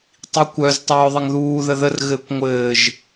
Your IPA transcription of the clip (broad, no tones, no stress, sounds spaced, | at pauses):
tˤ i kʷ œ z tˤ œː ðˤ ɘ ŋ ð uː ð ə ð ə r ɣ ɘː kʷ ŋʷ ɘː ʒ